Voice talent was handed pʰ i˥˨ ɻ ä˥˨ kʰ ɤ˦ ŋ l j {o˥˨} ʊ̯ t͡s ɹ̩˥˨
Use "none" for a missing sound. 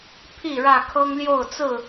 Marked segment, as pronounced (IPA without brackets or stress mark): o˥˨